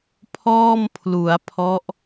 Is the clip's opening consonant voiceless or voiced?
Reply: voiceless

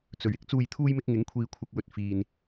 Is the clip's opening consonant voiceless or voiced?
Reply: voiceless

